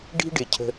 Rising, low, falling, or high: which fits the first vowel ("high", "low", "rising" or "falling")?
high